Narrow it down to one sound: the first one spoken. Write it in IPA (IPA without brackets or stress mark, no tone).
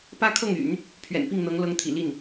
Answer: p